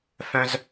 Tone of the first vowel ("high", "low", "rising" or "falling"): high